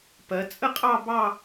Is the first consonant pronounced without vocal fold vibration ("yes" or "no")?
yes